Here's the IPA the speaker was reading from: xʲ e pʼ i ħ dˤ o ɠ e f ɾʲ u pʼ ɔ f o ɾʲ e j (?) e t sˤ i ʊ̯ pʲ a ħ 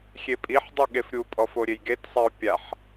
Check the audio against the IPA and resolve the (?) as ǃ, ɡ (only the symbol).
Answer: ɡ